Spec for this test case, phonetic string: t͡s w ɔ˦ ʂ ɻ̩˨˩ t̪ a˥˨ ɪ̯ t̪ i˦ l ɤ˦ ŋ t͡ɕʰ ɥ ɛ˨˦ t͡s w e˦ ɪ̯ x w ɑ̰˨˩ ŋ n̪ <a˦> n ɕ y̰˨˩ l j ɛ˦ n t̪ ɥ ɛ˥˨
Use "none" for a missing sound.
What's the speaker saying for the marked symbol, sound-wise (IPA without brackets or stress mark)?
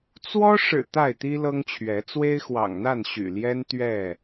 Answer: a˥˨